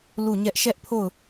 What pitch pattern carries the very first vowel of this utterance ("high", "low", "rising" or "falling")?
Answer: falling